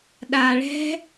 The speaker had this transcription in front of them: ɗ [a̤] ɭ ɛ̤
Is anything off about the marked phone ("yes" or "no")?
yes